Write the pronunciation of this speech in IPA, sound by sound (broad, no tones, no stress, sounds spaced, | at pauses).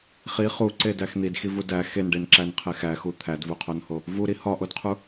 χ i χ u ǀ e d æ x n̪ i d x i v u d æ x e n ɖ e n ǁ æ n qʰ e x æ x u t̪ʰ æ d v u qʰ o n h o | v u ɾ i h ɒ ʔ o d qʰ u